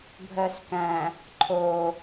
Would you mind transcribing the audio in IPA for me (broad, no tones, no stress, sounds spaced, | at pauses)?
bʱ œ s k æ̃ | ǃʰ o